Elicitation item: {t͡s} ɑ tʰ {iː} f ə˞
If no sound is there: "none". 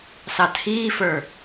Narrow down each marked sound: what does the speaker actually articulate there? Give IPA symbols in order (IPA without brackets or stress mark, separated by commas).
s, iː